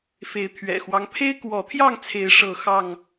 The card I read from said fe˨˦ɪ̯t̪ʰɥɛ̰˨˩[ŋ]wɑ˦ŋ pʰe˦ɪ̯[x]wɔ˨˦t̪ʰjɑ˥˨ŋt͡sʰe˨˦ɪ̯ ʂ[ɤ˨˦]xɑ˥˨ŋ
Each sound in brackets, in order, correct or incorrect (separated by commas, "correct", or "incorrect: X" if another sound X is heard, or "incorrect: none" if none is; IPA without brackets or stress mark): incorrect: x, incorrect: k, incorrect: ɤ˥˨